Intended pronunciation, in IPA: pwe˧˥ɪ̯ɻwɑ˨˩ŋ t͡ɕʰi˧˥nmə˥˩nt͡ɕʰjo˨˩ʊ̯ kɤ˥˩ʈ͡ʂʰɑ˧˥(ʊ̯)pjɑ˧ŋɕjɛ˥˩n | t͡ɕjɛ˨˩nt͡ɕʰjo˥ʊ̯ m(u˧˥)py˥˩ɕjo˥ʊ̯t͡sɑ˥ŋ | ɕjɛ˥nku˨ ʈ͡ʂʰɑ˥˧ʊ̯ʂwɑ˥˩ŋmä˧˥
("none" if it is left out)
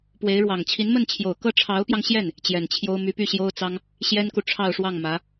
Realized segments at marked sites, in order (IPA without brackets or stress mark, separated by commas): ʊ̯, y˧˥